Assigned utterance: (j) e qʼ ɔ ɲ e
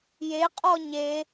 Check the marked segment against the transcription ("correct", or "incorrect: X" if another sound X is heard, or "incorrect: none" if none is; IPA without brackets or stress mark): correct